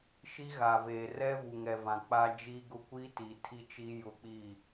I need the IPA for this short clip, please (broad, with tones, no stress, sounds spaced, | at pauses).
ʃ i˦ ɣ a˨ v eː˨ r ɛ˦ v u˨ ŋ ɛ˨ v ã˨ k͡p a˦ d͡ʒ i˦ ɡ ʊ˦ kʷ i˦ t i˨ tʰ i˦ t͡ʃ i˦ j ʊ˦ k͡p i˦˨